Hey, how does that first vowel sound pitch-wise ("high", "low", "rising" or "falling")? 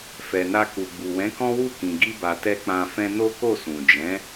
low